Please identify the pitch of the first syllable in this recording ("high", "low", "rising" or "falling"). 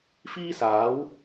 high